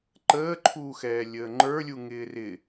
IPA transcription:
ǃ əː ǃʰ uː x ɛː lʲ əː ŋ͡ǃ ə˞ lʲ u ŋ ɪː r ɪ

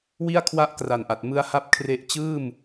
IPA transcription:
w i˥˩ a̯ kʰ w a˥˩ ʔ k r a˨˩ n ʔ a˨˩ t̚ m ɯ˦˥ a̯ h a˦˥ p̚ kʰ r e˦˥ ʔ t͡ɕ ɯː˥˩ m

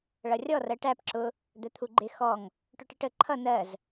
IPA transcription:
ɭ ʌ rʲ ɔ r ɜ ʈ æ p ǁ ʊ | d̪ ɛ t̪ʰ u ɡ͡ǃ ɪ x ɔ ŋ | ʈ ʊ ʈ ɪ ʈ ə ǃʰ ʌ n ɜ z

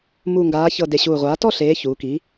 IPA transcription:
m u˨˩ ŋ ɡ aː˩˧ ç ɤ˨˩ d e˨˩ ɕ uː˨˩ ʁʷ aː˩˥ t ɔ˦˨ ɬ eː˩˧ ç uː˩˧ k i˩˥

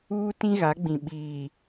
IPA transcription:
uː˦ t ĩ˦ ɣ a˨˦ ɡ͡b ĩ˨ ɓ iː˨

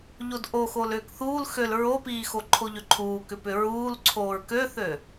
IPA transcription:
ʎ o d ʔ o x o l ʏː k θ uː l x ø l ɹ o p iː x o ǃʰ o ʎ ʏ ǃʰ uː k ʏ p ʏ ɹ uː l ǀʰ oː ɹ k ø θ ø

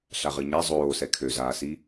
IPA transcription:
ɬ a ʁ ɨ ɲ æ zˤ oː s ɛ kʰ ø z aː s i

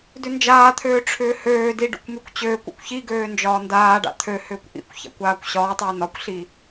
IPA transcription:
d ʏ n d͡ʒ aː t̪ʰ øː ʈ͡ʂʰ ʏː h øː d i ɖ ṵ kʷ m y kʷ t͡ɕ øː kʷ ṵ kʷ ç i ɡ øː n d͡ʒ ɒː n d aː ɖ a̰ t̪ʰ ø h ʏː kʷ ʔ ḭ kʷ ç a̰ kʷ aː kʷ ɕ ɒː tˤ ʏː n ɒ kʷ ɬ i

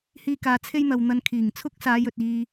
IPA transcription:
h iː˥ k aː˧ t͡sʰ e˥ j n̪ ɐ˨ w n̪ ɐ˧ n kʰ iː˨˩ ŋ t͡sʰ ʊ˥ k̚ s aː˨˧ j ɵ˨ t̚ iː˧

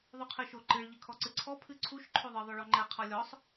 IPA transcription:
ðˤ u qʰ ɨ ʃ o ǃ ɨ ɭ ʎ ɨ kʰ ɔ ǀ ɨ ǀʰ ɔ pʰ ɨ ǀʰ u ʃ ǃʰ o ðˤ ɨ ðˤ o ɭ ɔ ŋ͡ǃ ɛ qʰ ɔ lʲ ɔ sˤ

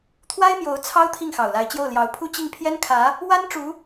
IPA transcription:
t̪ʰ w a˥ ɪ̯ m j o˧˥ ʊ̯ t͡sʰ ɑ˥ ʊ̯ t̪ʰ i˥˩ ŋ x ɑ˨˩ ʊ̯ l a˧˥ ɪ̯ t͡ɕ j o˥˩ ʊ̯ l j ɑ˧˥ ʊ̯ pʰ u˥˧ t͡ɕ i˥˩ ŋ pʰ j ɛ˥ n kʰ ä˧˥ | w a˥ n ʈ͡ʂ u˧˥

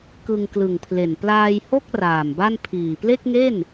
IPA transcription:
k ɯ˧ ŋ k l ɯ˨˩ ŋ pʰ l e˨˩ n p l aː˧ j h o˥˩ k̚ r aː˨˩ m b a˥˩ n pʰ iː˨˩ p l e˥˩ k̚ ŋ e˥˩ n

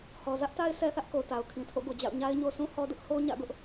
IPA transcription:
h ɔ˨ z ä˦ ʔ t a˦ ɪ̯ s ɛ˦ θ ä˦ ʔ k o˨ t a˨ ʊ̯ kʰ ĩ˨ tʰ o̰˦˨ ɡ o˨ d͡ʑ a̰˦˨ ʊ̯ ɲ a˦ ɪ̯ ɲ o˦ s ũ˦ h ɔ˦ d ʊ˦ ʔ h o˦ ɲ ä̰˦˨ ɡ ʊ˦ ʔ

